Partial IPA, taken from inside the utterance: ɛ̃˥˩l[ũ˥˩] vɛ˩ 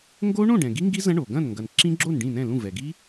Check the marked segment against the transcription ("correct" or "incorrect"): correct